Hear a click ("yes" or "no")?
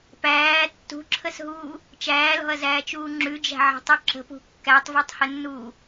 yes